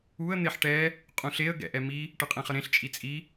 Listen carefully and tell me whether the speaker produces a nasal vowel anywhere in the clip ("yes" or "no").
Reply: yes